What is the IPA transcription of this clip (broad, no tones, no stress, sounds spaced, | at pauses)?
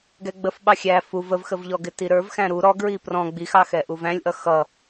ɡ ɛ ɡ͡b ə f ɓ ɑ xʲ æ f u v ə v x ə v ʎ ɔ ɡ ɪ t i ɾ ə˞ v x æ̃ ɾ u ɾ ɔ ɡ ɹ i p r ɔ̃ ɡ͡b i x ɑ x ɛ ʔ u v æ̃ lʲ ʔ ʌ x ʌ